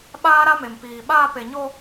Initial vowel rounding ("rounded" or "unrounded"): unrounded